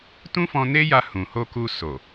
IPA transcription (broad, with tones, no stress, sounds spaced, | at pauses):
t ũ˦ f ɔ̃˧ n e˦ j a˧ h ũ˨ h o˧ k u˧ s o˨